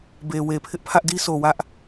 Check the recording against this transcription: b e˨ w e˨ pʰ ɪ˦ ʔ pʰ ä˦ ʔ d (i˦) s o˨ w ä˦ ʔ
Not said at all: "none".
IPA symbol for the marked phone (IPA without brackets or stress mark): i˦